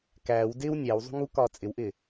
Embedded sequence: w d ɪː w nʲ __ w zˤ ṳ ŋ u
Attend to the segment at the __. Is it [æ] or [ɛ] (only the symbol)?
æ